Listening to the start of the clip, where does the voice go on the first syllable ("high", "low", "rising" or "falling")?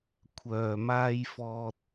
low